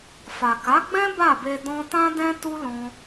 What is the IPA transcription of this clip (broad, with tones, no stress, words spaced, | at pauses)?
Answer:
fa˨ka˨˦ɡ͡bɛ̃˦ ba˦˨be˧ dɔ̃˦ tã˦dɛ̃˦ tu˦ lɔ̃˦